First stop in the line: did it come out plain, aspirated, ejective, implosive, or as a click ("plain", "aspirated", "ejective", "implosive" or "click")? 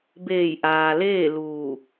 plain